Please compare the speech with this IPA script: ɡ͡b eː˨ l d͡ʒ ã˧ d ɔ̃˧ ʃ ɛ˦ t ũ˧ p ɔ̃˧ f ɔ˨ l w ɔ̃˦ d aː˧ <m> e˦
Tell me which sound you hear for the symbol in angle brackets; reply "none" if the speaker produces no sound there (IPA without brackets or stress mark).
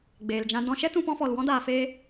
f